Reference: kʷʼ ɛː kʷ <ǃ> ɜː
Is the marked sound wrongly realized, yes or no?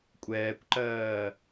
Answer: no